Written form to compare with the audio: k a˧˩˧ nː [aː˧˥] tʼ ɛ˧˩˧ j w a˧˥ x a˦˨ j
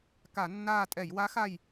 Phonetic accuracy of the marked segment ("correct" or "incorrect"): incorrect